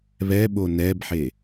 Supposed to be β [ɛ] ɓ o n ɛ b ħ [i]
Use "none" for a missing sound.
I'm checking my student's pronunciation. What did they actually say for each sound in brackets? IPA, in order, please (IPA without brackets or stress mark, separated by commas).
ɛ, e